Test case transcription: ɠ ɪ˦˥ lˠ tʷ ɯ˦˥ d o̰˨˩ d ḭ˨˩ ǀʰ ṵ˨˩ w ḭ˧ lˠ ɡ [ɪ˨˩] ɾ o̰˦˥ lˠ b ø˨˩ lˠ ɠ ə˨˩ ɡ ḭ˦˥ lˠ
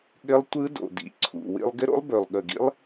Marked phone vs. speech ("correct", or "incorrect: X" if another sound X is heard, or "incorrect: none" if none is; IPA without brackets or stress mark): incorrect: ɪ˦˥